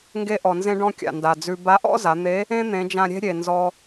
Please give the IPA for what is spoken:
ŋɡe˧ʔɔ˩nzẽ˧ɖɔ̃˧ kʲa̰˩nda˩d͡zʉ˧ ba˧˥ʔɔ̰˥za˩˧n̪e˧˥ | ẽ˥ n̪ẽ˩˧d͡ʒã˧ɾʲe̤˥ɾʲe˩ nzɔ˧

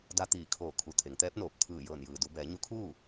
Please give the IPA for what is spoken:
da˧t̪iː˧˩kʰoː˧˩ kʰu˧˩t̪ʰe˩˧ŋt̪ɛː˧˥p̚noː˧˩p̚ t̪ʰɯː˧˩ jɤː˧˩njɯː˩du˩˧ bɛː˩˧ɲu˧˥kʰuː˥˨

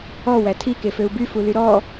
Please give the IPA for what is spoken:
ɔ wætʰi keføu̯by fulyɾɔ

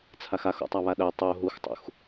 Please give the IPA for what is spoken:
t͡sʰaxax o̰tˤaβaɗɜ tˤo ɦuxtˤṵx

